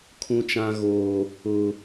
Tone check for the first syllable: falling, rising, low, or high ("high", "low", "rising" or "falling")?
high